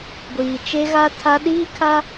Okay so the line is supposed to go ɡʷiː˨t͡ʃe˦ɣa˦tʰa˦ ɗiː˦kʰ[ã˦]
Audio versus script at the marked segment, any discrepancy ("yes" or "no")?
yes